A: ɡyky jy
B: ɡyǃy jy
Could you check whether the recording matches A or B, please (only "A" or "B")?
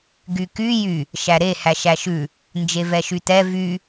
A